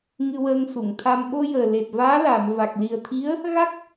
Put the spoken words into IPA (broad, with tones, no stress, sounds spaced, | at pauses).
ŋ ɨ˧ w əː˧ ŋ s u˨˩˨ ŋ t̪ʰ a˧ m ɓ o˧ j əː˨˩ l e˨˩ t̚ v aː˧˥ l aː˨˩˨ m v a˨˩ k̚ l i˨˩ ə̯ t̪ʰ i˧˥ ə̯ | ɣ a˦˥ k̚